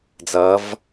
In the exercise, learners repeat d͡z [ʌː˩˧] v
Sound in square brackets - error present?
no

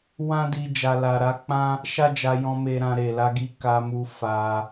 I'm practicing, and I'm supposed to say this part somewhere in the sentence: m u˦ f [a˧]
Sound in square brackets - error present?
no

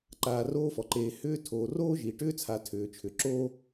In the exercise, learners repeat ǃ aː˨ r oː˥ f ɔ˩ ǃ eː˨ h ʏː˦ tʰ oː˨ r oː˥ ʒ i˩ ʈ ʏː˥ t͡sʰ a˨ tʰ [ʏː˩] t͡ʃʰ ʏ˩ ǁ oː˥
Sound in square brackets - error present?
no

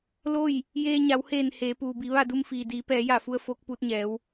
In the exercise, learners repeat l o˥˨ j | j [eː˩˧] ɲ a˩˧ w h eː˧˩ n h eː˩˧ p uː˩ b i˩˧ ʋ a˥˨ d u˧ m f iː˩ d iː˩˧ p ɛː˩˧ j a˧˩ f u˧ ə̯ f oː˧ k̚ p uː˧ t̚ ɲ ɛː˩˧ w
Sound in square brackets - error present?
yes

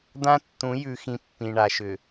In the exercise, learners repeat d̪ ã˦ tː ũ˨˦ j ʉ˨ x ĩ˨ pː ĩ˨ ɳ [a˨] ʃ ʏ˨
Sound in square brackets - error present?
no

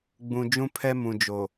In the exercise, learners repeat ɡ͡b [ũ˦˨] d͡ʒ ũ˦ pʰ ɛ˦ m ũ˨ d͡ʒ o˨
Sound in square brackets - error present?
yes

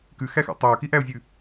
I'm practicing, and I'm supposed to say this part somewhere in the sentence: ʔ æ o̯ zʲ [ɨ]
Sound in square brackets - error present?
yes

